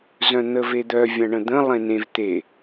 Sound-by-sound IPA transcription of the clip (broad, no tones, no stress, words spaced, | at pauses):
zœ̃n̪əved̪œ vʲãɳə̃d̪ə̃ lˠẽnẽv t̪e